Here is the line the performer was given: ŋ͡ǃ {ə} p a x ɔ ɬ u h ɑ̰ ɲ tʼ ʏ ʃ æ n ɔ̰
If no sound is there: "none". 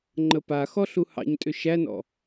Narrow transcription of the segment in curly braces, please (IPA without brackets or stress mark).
ə